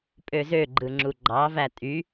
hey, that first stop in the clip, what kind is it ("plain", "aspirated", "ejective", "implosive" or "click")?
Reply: ejective